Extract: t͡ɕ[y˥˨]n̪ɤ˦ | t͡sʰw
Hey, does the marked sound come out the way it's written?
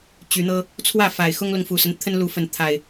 no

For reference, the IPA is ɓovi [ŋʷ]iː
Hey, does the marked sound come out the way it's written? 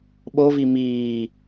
no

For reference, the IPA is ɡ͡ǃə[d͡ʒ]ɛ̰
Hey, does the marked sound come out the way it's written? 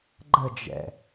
yes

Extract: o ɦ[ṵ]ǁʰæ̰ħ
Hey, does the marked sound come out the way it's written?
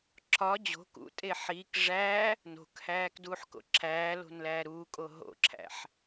no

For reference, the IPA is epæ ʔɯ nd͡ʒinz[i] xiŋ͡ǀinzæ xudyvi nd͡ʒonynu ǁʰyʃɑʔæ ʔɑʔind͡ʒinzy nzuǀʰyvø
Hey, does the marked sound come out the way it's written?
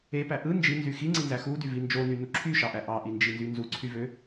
no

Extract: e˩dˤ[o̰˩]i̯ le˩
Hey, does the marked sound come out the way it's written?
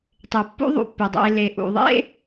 no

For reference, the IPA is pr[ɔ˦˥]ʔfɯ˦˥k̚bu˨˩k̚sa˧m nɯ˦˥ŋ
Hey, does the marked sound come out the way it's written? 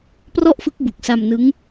no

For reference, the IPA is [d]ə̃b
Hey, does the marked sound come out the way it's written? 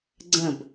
no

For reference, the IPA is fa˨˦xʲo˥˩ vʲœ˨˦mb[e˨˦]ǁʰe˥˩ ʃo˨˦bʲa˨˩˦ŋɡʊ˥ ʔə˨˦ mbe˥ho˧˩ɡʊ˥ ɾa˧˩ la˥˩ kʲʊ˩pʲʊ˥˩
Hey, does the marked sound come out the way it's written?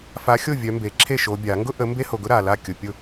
no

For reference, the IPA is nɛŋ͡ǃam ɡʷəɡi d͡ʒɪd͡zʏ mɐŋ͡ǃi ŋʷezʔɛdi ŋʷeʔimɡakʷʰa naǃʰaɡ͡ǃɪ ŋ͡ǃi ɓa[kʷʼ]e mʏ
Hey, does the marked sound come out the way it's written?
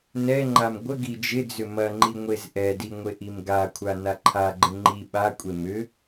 yes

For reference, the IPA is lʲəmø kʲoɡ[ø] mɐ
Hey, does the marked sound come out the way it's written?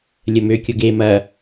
no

